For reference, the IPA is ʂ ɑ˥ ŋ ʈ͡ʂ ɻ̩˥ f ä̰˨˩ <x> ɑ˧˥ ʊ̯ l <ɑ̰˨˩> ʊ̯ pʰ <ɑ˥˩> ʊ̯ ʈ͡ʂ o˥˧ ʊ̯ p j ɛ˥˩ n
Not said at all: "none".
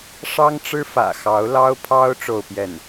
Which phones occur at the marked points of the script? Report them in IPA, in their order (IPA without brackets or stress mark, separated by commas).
x, ɑ˥, ɑ˥